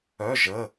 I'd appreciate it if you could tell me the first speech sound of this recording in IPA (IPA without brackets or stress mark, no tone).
œ